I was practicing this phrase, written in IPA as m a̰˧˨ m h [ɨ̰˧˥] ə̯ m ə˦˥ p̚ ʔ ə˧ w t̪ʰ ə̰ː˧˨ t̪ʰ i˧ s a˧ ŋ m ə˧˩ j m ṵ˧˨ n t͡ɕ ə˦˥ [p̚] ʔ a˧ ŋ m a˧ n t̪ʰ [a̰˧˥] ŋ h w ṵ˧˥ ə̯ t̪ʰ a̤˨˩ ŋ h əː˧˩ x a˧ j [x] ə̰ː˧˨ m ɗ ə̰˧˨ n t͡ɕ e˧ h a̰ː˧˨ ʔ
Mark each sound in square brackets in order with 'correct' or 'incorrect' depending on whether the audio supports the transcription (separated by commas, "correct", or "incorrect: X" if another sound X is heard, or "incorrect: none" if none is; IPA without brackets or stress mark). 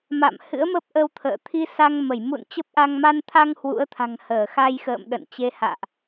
correct, correct, incorrect: a˧, correct